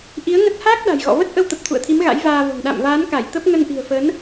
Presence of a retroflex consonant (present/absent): absent